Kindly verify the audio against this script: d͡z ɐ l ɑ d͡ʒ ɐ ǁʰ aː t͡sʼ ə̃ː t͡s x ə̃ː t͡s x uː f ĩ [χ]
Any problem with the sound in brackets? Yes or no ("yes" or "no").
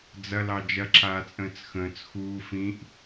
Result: yes